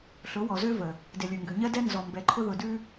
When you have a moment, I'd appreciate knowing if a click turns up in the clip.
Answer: yes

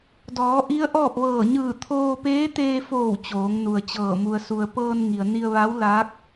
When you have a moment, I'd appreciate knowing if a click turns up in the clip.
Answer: no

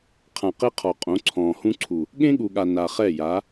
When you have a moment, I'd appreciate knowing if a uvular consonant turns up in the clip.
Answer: yes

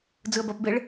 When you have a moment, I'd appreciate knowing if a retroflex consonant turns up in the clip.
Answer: yes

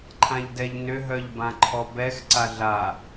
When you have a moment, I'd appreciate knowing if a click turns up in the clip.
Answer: yes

